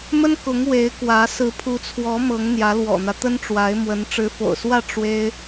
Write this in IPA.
mə˥nkʊ˧˥ŋ we˧˥ɪ̯kwä˧˥ sɹ̩˧˥pʰu˧˥t͡sʰwɔ˧˥ mɤ˧˥ŋn̪jä˧˥lwɔ̰˨˩n̪ä˦ t̪ə˥nʈ͡ʂwa˧˥ɪ̯mwə˧˥n ʈ͡ʂɻ̩˧˥fo̰˨˩ʊ̯swä˥˩ ʈ͡ʂwe˥ɪ̯

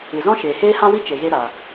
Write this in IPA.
ɨ˨zɔ̃˦ ʃeː˨heː˦hã˦ wi˦t͡ʃe˨ ɣe˧ ɾaː˨

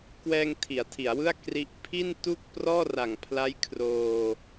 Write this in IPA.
kwɛː˧ŋ tʰi˩˦a̯tʰi˩˦a̯wɯ˥˩a̯ kri˦˥ʔ pʰi˥˩ntu˥˩k̚ prɔː˥˩ra˨˩ŋpʰla˦˥j kʰroː˧

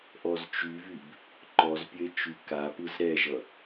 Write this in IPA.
ʔɔzt͡ʃyvyb | ǃɔzpʲəe̯ t͡ʃykapɯz ɾɛʒʌ

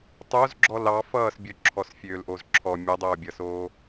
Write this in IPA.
tˤoz ɡ͡ǁɔlɑfʌːsbʲo ǁʰɔsfʲøːlʔozǁʰɔ mʲʌdˤoːbʲʌsoː

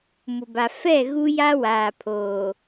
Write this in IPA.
mʊ˨ba˨ fɛ˦˨ ɣu˦ja˦ waː˨pʰoː˨

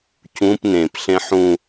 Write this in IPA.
cũp nẽpɬẽ ħũ

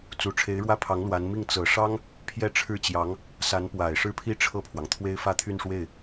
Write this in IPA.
t͡su˨˩ʈ͡ʂʰe˧˥ɪ̯ɻwä˥˩pʰɑ˧˥ŋ lwa˧˥n mi˥˩ŋ t͡sɤ˨˩ʂɑ˥ŋ | pʰjɛ˥˧ʈ͡ʂʰɻ̩˥˩t͡ɕjɑ˧˥ŋ | sa˧˥npwa˨˩ɪ̯ ʂɻ̩˥˩pʰi˥ ʈ͡ʂʰɤ˥˩pʰwɑ˩ŋt̪ʰwe˥ɪ̯fä˥˧ t̪ʰy˥˧nʂwe˥˩ɪ̯

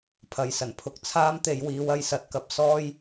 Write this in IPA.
pʰɐ˨˧jsɐ˨˩npʰʊ˧k̚ t͡sʰaː˥mt̪e˨˧j wiː˨˧wɐ˧jsɐ˨t̚kɐ˧p̚ sɔː˥j

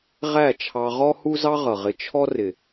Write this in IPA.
ʁæ˦˨t͡ʃʰɑ˧ʁɔ˦ hu˦zɑ˦ʁʌ˨ʁɪ˧ t͡ʃʰɔ˦rɪ˨

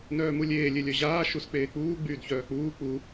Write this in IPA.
nœːmulʲeː lʲelʲœʑaː ʃusk͡peːk͡puː ɡ͡byːdçœːk͡puː k͡pu

